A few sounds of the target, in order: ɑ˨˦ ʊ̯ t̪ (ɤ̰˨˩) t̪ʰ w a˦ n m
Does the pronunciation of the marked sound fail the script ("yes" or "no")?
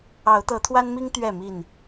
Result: yes